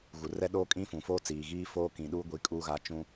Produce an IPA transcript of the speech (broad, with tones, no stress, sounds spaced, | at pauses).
ɣ u˨ r ɛ˦ ɗ oː˦ kʼ ĩ˦ f ũ˨ f oː˦ t͡s iː˨ ɣ iː˦ f oː˦ k ĩ˨ ɗ uː˦ ɡʷ i˨˦ kʼ uː˦ ɣ a˦ t͡ʃ ũ˦